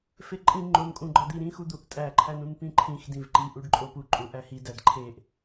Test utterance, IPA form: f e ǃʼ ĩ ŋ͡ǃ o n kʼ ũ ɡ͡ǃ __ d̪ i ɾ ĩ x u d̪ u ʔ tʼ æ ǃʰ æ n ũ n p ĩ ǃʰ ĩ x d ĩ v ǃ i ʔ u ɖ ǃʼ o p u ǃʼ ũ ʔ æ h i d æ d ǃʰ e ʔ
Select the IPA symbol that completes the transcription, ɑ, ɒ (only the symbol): ɒ